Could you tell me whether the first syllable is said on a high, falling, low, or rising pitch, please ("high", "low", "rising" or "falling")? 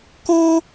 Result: high